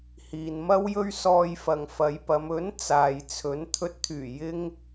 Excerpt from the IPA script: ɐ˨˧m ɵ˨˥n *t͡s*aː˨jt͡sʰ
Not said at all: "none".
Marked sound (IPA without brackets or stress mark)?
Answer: t͡s